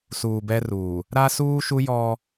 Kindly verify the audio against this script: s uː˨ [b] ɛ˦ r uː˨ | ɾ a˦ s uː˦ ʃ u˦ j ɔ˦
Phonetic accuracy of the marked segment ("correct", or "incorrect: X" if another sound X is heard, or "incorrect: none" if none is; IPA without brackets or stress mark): correct